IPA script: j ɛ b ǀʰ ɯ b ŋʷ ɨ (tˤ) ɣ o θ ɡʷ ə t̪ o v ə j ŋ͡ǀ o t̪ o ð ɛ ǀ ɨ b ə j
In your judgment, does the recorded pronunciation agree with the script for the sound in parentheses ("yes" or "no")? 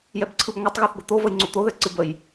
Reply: yes